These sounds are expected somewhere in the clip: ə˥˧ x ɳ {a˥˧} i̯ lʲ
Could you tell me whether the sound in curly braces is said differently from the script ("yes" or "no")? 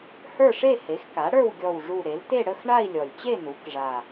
no